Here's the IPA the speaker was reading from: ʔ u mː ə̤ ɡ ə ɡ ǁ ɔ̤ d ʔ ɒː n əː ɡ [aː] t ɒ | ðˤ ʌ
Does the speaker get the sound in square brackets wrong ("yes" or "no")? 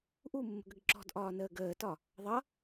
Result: yes